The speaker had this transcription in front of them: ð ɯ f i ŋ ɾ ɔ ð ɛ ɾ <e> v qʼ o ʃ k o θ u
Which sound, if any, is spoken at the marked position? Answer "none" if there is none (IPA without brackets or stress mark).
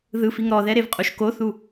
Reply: e